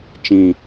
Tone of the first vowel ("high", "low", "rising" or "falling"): low